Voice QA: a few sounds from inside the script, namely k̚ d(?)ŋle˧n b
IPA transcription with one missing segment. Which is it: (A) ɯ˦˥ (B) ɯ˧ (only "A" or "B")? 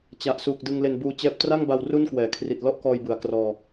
B